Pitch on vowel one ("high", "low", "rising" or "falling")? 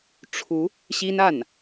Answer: rising